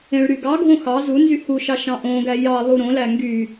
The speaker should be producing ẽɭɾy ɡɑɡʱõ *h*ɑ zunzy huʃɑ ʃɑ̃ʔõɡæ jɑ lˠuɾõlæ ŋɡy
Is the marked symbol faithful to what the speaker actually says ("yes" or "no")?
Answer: no